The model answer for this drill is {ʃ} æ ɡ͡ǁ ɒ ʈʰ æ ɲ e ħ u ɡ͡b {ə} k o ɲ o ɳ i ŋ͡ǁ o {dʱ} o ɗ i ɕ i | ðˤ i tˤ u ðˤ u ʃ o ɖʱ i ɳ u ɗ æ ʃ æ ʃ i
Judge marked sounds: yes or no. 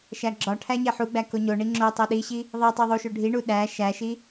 yes, no, no

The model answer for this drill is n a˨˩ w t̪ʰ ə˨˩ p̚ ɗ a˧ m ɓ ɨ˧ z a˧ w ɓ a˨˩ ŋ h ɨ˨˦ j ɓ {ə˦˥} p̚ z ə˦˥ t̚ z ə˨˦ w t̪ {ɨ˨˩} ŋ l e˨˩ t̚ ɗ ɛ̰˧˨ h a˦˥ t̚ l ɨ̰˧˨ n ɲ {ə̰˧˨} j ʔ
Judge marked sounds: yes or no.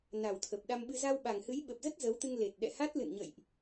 no, no, yes

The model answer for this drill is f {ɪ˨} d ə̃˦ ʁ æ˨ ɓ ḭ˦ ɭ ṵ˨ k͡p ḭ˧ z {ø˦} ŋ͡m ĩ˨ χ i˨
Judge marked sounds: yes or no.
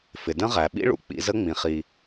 yes, no

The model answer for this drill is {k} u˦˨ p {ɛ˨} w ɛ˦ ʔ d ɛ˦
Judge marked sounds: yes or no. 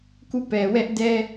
yes, yes

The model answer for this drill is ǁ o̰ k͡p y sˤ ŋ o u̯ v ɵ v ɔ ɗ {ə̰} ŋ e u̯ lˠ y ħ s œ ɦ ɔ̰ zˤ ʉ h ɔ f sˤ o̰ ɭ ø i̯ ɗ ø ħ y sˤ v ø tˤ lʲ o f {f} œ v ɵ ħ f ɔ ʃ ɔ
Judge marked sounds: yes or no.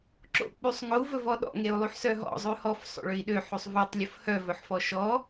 no, no

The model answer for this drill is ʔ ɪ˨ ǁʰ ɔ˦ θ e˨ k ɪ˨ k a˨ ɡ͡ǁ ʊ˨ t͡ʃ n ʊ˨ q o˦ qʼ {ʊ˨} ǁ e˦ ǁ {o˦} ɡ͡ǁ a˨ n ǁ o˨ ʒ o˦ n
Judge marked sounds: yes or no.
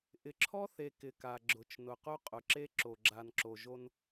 yes, no

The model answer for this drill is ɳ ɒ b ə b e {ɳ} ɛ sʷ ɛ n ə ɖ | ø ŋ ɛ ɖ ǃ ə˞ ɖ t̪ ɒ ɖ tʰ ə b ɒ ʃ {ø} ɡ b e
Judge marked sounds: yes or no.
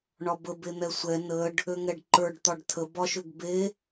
no, yes

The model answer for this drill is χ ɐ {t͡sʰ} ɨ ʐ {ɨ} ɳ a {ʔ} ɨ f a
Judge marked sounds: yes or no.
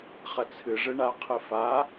yes, yes, no

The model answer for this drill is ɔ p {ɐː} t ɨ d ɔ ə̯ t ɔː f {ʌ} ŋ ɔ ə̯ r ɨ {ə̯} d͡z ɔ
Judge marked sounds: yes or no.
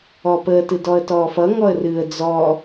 no, yes, yes

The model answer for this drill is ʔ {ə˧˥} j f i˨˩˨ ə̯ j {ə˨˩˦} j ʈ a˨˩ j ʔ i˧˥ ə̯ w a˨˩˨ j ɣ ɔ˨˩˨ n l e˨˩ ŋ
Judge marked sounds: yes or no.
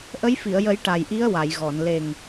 yes, yes

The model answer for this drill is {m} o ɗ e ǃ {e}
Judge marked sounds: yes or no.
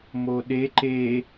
yes, yes

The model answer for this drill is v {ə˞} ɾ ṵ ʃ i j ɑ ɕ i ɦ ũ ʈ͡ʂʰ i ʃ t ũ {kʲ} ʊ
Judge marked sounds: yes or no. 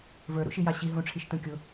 yes, yes

